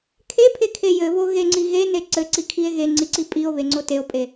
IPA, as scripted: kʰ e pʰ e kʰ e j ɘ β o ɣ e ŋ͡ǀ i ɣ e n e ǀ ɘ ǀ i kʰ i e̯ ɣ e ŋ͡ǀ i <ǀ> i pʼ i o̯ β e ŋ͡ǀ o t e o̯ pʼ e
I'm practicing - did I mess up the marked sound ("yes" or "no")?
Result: no